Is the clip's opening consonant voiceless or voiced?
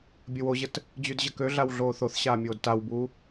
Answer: voiced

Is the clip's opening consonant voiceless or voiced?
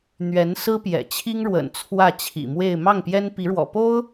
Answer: voiced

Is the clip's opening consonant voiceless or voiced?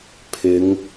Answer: voiceless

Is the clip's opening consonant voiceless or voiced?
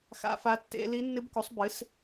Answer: voiceless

